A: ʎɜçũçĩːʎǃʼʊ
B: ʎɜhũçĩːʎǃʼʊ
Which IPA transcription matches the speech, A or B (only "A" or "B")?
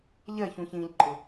A